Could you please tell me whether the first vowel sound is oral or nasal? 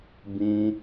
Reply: nasal